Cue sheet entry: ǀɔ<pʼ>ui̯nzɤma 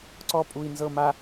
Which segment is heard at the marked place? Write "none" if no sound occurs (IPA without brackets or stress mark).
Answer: pʼ